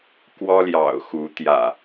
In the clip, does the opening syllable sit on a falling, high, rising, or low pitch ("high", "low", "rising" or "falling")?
high